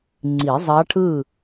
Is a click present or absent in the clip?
present